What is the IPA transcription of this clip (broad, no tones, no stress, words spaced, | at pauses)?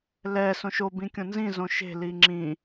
lɛ sõʃo bĩkʲõnzĩ zõʃe̤ liŋ͡ǁĩ